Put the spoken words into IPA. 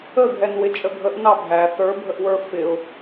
əɡʱɛnwɪ t͡ʃʼəɡʱəʔ nɑbʱæ θə˞bʱəʔwə˞ fɪʊ̯

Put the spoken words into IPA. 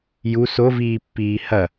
ju soviːpːiː hɐ

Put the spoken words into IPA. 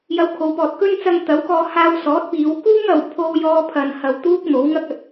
jɐ˧wkʰo˨˧wpɔː˨t̚kɵ˥n t͡sɐ˧ŋt̪ɐ˨˥wkɔː˧ haː˧wsɔː˨˥t̚piː˨˧wkuː˥ŋ ɐ˧w pʰo˥wjɔː˥ pʰɐ˧nhɐ˧w t̪uː˥k̚n̪o˨˥wŋɐ˥k̚ ɐ˧t̚

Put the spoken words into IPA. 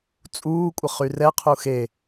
t͡sʼuː kʷʼəχyrɛ qʰuxe

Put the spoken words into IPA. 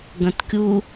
ɡɐ̃tkʲu

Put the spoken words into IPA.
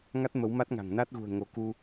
ŋa˦˥t̚mə˨˦wma˦˥t̚ŋa̤˨˩ŋ na˦˥t̚ɣṳ˨˩ə̯ŋo˨˦ ku˧

